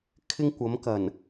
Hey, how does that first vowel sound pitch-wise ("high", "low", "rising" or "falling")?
high